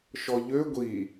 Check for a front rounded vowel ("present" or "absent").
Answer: present